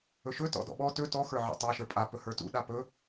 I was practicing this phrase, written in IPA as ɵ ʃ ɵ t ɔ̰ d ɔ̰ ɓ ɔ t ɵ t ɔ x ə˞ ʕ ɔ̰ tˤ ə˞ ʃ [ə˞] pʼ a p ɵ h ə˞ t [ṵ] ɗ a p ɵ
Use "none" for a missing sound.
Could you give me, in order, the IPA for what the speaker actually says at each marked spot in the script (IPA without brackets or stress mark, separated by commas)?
ə˞, ṵ